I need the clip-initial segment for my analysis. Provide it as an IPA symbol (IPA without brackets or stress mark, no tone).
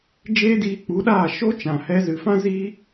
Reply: d͡ʒ